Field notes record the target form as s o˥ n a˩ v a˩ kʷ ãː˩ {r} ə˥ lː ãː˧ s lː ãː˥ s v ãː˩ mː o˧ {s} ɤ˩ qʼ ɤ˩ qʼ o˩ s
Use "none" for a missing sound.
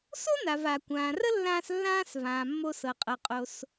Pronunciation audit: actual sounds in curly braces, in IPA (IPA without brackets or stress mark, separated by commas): r, s